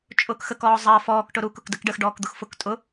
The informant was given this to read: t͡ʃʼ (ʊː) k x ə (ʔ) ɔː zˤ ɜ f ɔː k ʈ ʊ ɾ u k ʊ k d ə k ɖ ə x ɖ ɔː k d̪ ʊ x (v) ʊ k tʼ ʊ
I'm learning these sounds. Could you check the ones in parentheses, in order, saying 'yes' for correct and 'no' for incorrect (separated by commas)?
yes, no, no